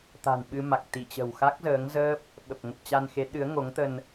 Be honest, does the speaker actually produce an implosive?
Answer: yes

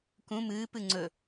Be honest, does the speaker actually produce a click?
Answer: yes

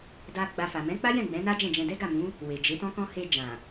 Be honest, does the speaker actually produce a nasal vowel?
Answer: yes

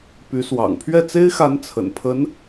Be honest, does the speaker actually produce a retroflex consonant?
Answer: no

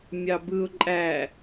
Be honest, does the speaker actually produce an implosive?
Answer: no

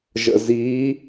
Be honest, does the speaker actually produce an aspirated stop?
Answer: no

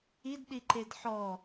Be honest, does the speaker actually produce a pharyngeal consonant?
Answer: yes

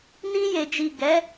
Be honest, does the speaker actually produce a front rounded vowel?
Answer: no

